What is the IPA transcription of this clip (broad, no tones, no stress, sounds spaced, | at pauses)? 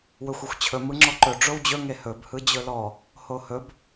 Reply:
w ɵ xʷ e xʷ t͡ɕʰ ɵ m ɯ ŋ͡ǁ ɔ ǃ ɵ ɖ͡ʐ o w d͡ʑ ɵ ŋ e h ɵ b h ɯ d͡ʑ ɵ l ɔ | h o h ɵ b